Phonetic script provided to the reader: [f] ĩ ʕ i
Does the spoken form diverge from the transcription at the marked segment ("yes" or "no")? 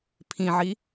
yes